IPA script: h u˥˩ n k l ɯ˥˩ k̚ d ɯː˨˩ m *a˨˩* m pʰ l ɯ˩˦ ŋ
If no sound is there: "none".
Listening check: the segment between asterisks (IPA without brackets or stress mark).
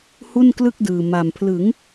a˨˩